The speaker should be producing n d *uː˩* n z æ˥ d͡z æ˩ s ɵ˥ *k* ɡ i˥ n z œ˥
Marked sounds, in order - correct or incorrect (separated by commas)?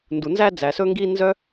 incorrect, incorrect